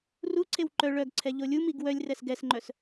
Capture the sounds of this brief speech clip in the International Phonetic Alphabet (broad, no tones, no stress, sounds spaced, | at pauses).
r u ǀʰ e w ǃ œ ɭ œ ɡ ǀʰ ɛ ʎ o lʲ u m i ɡ w œ lʲ r ɛ s ɡ ɛ s ŋ͡ǃ œ s